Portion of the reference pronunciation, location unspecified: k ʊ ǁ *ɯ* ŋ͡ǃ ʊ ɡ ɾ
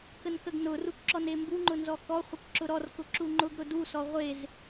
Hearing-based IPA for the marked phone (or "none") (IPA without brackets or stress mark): u